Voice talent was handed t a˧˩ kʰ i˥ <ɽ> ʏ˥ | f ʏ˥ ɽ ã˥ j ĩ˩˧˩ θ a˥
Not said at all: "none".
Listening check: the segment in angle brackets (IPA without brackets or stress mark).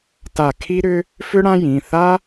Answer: ɾ